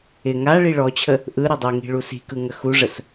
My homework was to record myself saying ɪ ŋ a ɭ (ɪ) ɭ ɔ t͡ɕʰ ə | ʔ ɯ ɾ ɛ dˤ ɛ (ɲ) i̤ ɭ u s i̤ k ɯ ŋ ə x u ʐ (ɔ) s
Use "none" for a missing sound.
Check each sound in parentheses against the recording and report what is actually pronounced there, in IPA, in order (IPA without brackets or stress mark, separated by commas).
i, ŋ, ə